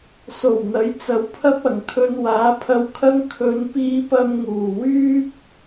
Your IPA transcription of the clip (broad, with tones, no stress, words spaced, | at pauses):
so˨˩wn̪ɐ˨˥j t͡sɐ˨˧wpʰɐ˥p̚ɐ˨˩ŋt̪ʰɵ˧n waː˨˥pʰɐ˧wkʰɐ˥ŋ kʰɵ˨˧npiː˧pɐ˧m ŋuː˨˩ wyː˥p̚